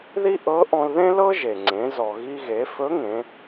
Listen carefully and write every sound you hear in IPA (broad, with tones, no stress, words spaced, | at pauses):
ði˥ʔɤ˧˥ʔɔ̃˧l ðẽ˥lɤ˥ʒe˩ŋ͡ǀẽ˩˧ zɔ˩ɣi˧ɣe˩˧ fɵ˧˥ŋẽ˩˧